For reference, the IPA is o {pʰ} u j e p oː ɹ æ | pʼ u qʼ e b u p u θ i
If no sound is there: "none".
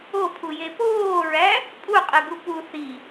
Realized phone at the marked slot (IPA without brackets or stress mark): pʰ